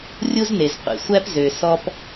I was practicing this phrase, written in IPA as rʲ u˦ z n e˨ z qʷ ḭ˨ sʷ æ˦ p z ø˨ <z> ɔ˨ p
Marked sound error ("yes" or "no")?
yes